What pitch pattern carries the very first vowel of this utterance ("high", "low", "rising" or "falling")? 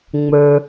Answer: low